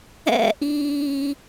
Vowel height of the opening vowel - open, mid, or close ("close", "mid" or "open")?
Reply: mid